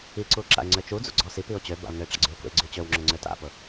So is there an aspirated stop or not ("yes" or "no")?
no